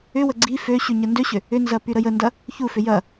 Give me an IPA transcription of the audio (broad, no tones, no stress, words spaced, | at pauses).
ʏwə ɡ͡ǀi føɕy ɲəndøɕʏ | ʏnzɐ pyɾəjəndɐ | çufʏ jɐ